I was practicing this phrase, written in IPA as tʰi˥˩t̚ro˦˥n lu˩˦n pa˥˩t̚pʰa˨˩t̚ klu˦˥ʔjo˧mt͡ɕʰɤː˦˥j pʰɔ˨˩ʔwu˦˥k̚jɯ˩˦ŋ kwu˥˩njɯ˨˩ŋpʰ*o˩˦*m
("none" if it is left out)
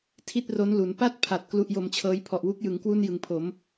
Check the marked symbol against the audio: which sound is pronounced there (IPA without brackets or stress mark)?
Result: o˩˦